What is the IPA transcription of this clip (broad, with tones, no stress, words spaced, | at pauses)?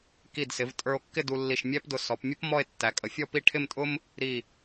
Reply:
ki˧˩dsɪ˩˧v tʼə˞˧o̯kːɪ˥˧ du˧lːi˧˩ʃmʲæ˥pdʊ˧ sɔ˩˧pmʲʊ˥p mɔ˥˧e̯ tːæ˩˧kʼə˩˧fʲɔ˥˧pi˥˧ ʈʰɪ˥˧mtʼʊ˥m | ɾi˧˩